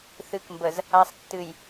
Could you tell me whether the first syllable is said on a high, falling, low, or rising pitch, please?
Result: low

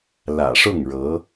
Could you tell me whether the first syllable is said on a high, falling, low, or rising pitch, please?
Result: low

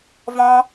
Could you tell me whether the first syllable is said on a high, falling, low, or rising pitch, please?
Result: high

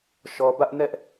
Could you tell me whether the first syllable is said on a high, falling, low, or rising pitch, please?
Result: low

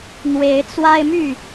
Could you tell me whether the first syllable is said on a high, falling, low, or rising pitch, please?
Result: rising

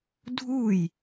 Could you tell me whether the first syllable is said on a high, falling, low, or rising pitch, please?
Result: falling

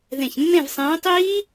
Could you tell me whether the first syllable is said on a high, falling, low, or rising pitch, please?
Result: low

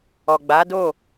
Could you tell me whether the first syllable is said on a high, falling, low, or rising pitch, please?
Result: low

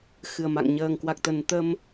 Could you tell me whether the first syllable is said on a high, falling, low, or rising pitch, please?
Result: low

